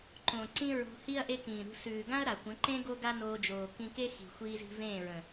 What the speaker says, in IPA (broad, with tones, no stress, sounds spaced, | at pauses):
ǃ õ˨ ǀ ĩ˦ ɹ o̤˧ h i˦ ɐ̯ ʔ e˦ k ĩː˨ ɾ ṳ˧ s ʉː˨ ɡ ã˦ ɐ̯ ɾ a˨ kʷ ə̃˨˦ ǃ ẽ˦ ɡ o˦ ɡ a˦ n oː˧ d͡ʒ oː˨ k ĩ˧ k e˦ x i̤˨ xʷ iː˧ z i̤˧ v ẽː˦˨ ɹ ə̃˨